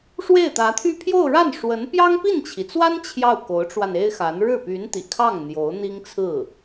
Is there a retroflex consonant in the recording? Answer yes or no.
yes